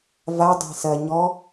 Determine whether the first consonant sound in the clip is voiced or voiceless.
voiced